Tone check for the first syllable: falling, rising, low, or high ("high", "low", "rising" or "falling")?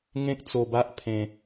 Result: high